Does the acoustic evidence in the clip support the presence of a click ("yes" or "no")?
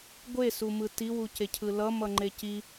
yes